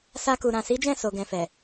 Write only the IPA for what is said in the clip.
sa˧ku˨ ɾã˨si˨˦d͡ʒɛ̃˦˨ so˨ɡɛ̃˨fɛ˨

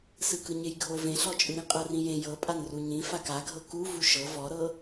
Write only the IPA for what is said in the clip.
sɯkɯɲejɡʱo vẽɬɔt͡ʃʼɯɾĩ qʼɤrĩjẽ jɤpʼanru ɲĩfak aɡʱɤ ku vuʃɤ vɔɾɤ

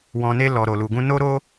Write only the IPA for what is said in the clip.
wɔ̃˧ne˦ lɔ˧ɾo˧lu˧ɡũ˦ no˦ɾo˦

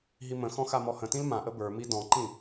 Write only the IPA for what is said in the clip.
ɦimə̃xɔ̃ xamɔhə̃tĩl mãʔə bə˞mi dɔ̃ǃĩ

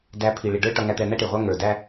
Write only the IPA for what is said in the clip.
dæ˨˦pʰi˨ɭi˨ɖə˞˦ ʈʌ˨ŋæ˨t̪ɛ˨ n̪æ˦ʈi˨ʁʷæ˦ ŋə˞˨dæ˦

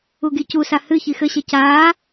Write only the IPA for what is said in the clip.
uɡicusa hɨ çixɘɕɛ caː

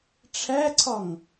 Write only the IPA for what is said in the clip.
ʈ͡ʂʰæǀʰɒŋ

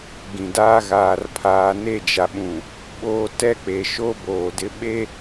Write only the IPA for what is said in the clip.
ɡĩ˨daː˦ ɣaː˨rpʰaː˨ ne˦˨d͡ʒa˨ɓũ˨ | ɓoː˦ tɛ˦k͡pe˨ʃo˦ boː˨dɪ˦ ɓe˦

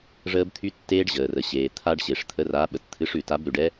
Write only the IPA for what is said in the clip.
ʐəː˦˥bt̪ʰy˦˥ tːeː˦˥ɖ ʑəː˩rə˩ ɕeː˩t̪ʰa˦˥ɖɕe˩ʂt̪ʰə˨˥ ra˨˥ ɓə˩tt̪ʰɨ˨˥ʂʉ˩ ta˨˥bɾʉ˩ɖɛ˦˥

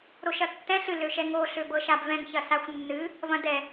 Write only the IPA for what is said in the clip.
ɾoʃɐtːɛ̃ɬ ɨ løʃɛŋo ɬøbɤʃabvɛ̃ŋ çɐsaxʷnːɨ | vɐ̃dɛ

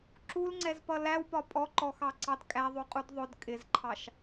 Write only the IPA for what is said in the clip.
ǁulŋ͡ǀɛzpʌ læwpɒ pʼɔǃɔxɑǀɑd kʼæðˤuqʼud ðˤʊd kʼɪzǃʰɑʃ

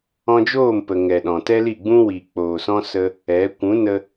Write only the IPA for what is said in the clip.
ɔ̃˧d͡ʒoː˦˨mpə˨ ŋɛ˨ɗɔ̃˨tɛ˦li˦˨ ɡ͡bũ˧wi˨k͡poː˨sɔ̃˧ sə˧ | ɛ˨˦ kʷũ˨˦nə˧

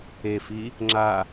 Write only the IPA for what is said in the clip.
efi | ŋ͡ǁa

